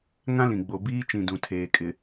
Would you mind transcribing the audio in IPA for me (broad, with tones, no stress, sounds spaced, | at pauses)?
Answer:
ŋ ã˦ l ĩ˨ ɡ͡b o˨ b iː˦ t͡ʃ ĩ˨ d ũ˨ tʰ eː˨ kʼ ɪ˨